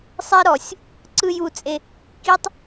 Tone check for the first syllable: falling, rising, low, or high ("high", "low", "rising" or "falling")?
high